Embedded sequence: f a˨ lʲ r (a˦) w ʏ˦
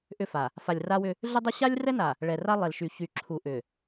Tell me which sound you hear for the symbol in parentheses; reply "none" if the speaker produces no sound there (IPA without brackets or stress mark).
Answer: a˦